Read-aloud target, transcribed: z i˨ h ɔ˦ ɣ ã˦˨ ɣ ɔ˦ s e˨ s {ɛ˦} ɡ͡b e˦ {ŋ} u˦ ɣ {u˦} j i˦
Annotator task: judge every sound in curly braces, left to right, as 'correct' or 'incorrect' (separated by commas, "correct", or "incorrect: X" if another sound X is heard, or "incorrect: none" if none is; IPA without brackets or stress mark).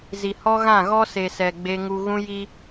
incorrect: ɛ˨, correct, incorrect: ũ˦